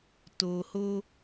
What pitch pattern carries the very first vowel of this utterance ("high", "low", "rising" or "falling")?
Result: low